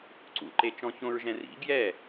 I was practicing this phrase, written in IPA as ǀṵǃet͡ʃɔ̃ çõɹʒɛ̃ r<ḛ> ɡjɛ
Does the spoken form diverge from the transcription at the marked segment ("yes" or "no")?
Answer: yes